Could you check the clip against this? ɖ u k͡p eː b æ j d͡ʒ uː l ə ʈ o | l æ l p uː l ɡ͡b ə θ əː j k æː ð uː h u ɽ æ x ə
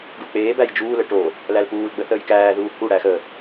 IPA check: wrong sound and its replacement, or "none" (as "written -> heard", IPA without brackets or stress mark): none